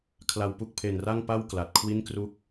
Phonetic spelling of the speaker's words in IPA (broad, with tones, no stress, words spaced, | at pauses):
kʰla˨˩wpu˥˩k̚pʰe˨˩n ra˥˩ŋpa˥˩w kla˨˩t̚kʰwi˥˩nkru˥˩k̚